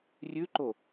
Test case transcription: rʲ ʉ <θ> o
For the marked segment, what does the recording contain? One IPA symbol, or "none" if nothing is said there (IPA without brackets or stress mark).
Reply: ǃ